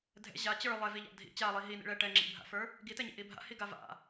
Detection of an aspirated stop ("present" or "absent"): absent